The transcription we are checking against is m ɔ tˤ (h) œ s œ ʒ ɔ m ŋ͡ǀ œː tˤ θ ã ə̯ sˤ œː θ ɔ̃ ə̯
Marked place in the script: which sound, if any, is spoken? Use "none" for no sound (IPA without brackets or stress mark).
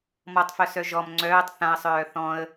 f